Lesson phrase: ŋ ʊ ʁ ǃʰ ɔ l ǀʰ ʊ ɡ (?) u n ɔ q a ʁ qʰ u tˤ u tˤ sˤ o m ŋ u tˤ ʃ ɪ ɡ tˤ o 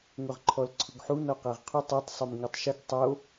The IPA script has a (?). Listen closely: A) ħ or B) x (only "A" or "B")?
A